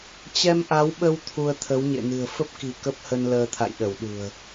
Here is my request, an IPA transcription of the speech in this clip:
t͡ɕ ɛ˧ m ʔ a˨˦ w ɓ ə˧ w t̪ʰ u˧ ə̯ t̪ʰ ə˨˦ w ɲ ḛ˧˨ n ɨ̤˨˩ ə̯ f ə˦˥ p̚ k i̤˨˩ k ə˦˥ p̚ h ə˧ n l əː˧ t̪ʰ a̰˧˨ j ɗ ə˧˩ w ɗ ṳ˨˩ ə̯

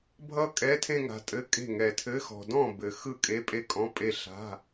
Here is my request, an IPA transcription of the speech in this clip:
bʱ ʌ˥˧ kʼ ɛ˧˥˧ tʰ ẽ˥˧ ŋ a̤˨ tʼ ɘ˧˥˧ kʼ e̤˥˩ ŋ ɛ˨ tʰ ɘ˧˥˧ x ɔ̤˨ d ɔ̃˥˩ b ɘ˨ x ɯ˥˩ kʼ e˧˥˧ pʼ e˥˩ kʼ ɔ̃˧˥˧ pʼ e˥˧ ɬ a̤˧˥˧

